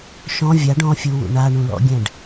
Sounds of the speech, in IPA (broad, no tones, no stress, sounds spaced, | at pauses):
ʃ ɔ̃ vʲ a ɖ ɔ̃ fʲ u w ṵ ɳ a ɳ ũ l ɔ̰ ɡʲ ɛ̃ ɖ